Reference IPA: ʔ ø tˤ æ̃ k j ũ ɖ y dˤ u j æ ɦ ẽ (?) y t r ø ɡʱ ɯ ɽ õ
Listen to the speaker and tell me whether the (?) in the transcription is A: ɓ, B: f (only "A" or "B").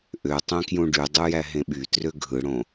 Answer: A